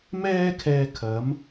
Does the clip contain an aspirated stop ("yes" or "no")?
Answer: yes